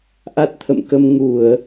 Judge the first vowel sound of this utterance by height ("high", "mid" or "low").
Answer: low